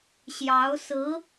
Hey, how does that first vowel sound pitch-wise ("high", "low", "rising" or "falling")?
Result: rising